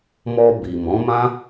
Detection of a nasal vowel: present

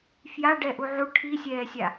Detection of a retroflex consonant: present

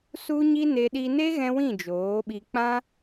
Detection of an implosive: present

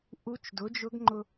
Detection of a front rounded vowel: absent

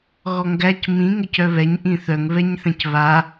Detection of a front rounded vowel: present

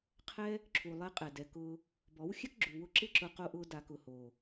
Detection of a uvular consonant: present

